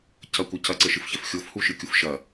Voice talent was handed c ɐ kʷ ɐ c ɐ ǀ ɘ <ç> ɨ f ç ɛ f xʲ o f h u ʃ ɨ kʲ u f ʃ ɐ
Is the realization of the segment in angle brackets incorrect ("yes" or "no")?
yes